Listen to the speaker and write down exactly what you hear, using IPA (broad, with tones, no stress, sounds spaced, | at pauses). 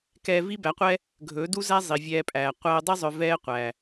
k ɛː˧ v i˦ b æ˨˦ qʷ ɛ˦ | ɡʱ ɵː˨˦ d u˦ z æ˦ zˤ i˨ vʲ ɛː˧ pʼ æː˨ qʷ æ˧ ə̯ dˤ i˦ zˤ œ˧ v ɛː˦ qʷ æ˨